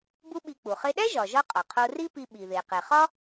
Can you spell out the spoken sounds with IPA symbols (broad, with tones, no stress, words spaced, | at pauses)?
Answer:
bu˥ɓi˧k͡pu˩ χe˧ɗæ˥ʒɒ˩ʒɒ˧ qʼɒ˩qʰo˧ri˥pi˧ ɓi˩ðe˩qe˩ χɒ˥